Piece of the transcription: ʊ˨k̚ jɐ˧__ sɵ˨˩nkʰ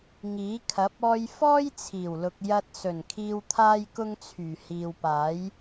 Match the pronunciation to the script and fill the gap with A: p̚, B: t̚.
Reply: B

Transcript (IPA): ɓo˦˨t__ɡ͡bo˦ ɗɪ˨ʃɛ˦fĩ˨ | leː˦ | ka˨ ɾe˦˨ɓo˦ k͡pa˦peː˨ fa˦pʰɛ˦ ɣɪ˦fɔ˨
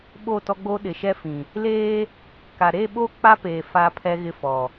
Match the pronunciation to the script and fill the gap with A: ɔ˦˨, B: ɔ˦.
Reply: B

